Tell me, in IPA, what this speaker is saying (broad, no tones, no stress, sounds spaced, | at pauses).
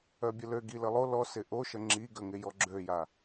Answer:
œ bʲ ə l ø ɡ i l ə lˠ o l ɔ s ɪ ʔ o ʃ ə ŋ͡ǁ i ɡ ə ŋ ɪ j ɔ ɡ͡ǁ ø j a